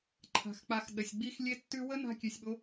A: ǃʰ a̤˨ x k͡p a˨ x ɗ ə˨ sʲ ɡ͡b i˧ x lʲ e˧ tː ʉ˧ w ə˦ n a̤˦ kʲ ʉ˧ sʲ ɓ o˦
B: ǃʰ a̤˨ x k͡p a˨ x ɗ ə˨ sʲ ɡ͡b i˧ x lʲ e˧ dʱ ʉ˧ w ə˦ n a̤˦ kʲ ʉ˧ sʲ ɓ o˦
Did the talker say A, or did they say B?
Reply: A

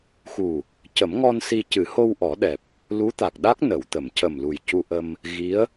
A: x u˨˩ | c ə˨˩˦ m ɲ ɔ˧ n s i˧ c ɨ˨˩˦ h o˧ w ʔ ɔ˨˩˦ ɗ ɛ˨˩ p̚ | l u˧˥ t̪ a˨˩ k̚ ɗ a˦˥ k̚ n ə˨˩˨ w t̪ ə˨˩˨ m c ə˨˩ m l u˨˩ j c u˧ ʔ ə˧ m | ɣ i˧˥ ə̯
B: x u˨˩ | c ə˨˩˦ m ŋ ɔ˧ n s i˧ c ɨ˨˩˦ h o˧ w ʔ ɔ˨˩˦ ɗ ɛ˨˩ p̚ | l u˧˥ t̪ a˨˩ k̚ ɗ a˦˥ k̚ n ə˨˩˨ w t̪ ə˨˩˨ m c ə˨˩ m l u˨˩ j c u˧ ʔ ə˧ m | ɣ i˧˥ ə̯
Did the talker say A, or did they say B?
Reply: B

